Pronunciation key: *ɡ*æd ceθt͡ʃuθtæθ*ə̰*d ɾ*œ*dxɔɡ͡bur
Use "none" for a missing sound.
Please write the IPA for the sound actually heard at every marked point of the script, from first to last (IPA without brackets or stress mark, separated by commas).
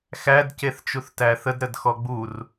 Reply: x, ə, ə